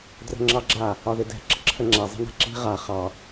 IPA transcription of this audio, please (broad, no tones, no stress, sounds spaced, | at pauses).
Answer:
d r ə̤ ŋ͡ǁ ɑ ɡ͡ǁ a | ɒ ð ɪ d ɛ̤ ǁ ə̤ ǁʰ ə ŋ͡ǁ a zˤ ə̤ n a̤ ǁ i̤ ʁ a χ ɑ